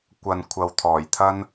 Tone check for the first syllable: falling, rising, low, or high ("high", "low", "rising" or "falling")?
low